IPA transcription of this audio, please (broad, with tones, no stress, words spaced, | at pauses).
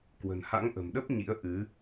kwə̤˨˩nha̰˧˥ŋʔə̤˨˩mɗə˦˥p̚ ɲḭ˧˥ə̯ʔɨ˨˦